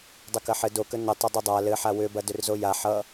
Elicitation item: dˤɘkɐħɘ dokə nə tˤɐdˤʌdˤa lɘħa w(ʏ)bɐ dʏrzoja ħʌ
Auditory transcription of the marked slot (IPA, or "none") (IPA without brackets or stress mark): ʏ